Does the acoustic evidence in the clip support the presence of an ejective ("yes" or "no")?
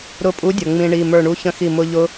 yes